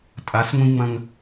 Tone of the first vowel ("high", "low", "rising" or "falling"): rising